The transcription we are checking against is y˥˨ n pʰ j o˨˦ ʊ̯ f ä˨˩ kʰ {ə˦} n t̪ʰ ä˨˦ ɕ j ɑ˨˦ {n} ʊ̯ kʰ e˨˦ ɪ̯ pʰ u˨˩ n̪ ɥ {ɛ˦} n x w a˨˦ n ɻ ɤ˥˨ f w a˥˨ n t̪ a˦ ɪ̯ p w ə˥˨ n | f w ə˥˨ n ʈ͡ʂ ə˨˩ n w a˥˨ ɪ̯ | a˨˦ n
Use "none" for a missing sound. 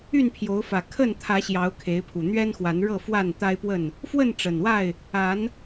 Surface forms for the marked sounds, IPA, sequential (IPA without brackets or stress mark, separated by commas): ə˥˨, none, ɛ˦